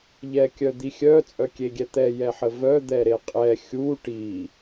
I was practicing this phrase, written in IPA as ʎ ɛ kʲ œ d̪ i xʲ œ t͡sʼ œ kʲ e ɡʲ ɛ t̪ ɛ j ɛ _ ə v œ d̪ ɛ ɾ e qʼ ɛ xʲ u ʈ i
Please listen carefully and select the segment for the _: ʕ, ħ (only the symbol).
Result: ħ